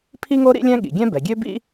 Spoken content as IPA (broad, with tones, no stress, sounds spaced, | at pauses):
pʰ i˥ ŋ o˥ ɾ ḭ˥ lʲ ɛ̃˥ ɠ ḭ˩ ɡʲ ɛ̃˥ b ɛ˩ ɡʲ ø˥ b ḭ˥